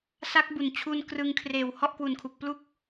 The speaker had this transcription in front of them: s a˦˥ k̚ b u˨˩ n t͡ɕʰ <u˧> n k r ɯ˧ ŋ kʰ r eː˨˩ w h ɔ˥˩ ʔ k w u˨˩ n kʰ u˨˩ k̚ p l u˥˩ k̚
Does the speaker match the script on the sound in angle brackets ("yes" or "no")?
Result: yes